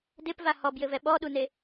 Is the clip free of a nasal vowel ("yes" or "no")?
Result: yes